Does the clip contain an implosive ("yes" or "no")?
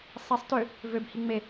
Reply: no